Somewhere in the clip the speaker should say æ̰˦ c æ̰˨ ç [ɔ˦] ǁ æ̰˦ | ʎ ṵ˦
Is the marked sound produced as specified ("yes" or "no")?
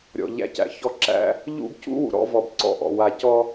yes